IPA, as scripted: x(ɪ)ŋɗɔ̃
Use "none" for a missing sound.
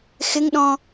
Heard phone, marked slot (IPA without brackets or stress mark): ɪ